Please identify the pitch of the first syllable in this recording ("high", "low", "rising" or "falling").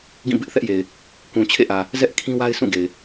falling